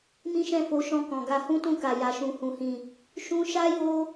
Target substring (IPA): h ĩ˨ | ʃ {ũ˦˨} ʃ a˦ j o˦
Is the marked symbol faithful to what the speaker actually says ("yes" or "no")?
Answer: no